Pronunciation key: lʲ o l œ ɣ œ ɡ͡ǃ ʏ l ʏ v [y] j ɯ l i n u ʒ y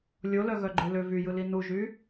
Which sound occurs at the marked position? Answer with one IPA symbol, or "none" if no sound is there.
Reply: y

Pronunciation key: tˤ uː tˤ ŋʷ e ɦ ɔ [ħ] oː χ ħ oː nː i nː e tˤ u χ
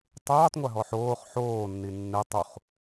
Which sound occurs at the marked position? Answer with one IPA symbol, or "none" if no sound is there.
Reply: ħ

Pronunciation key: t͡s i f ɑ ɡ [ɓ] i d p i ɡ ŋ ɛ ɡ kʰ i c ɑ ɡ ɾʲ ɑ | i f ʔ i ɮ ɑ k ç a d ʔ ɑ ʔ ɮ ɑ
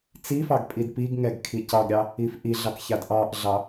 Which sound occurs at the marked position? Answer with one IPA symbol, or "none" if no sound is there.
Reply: pʼ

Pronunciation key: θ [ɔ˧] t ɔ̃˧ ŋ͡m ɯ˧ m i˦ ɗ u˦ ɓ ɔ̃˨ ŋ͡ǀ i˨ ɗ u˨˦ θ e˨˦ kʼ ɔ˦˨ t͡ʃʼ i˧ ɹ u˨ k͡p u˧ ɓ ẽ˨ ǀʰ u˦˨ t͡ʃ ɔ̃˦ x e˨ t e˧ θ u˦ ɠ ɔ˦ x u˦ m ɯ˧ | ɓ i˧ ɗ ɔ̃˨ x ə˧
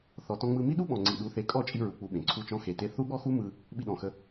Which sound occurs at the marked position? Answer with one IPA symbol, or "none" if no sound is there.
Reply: ɔ˨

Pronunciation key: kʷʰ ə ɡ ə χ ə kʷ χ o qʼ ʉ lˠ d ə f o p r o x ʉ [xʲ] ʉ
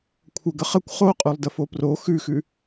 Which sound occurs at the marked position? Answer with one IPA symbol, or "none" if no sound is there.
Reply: x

